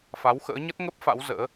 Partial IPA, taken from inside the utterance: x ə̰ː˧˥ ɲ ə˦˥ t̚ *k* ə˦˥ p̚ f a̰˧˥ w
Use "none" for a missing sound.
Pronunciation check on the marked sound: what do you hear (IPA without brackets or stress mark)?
ŋ